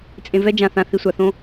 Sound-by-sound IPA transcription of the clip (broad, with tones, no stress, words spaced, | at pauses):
t͡sʼẽ˨vɛ˦ d͡ʒã˨θã˨θi˨ sʷa˨θõ˦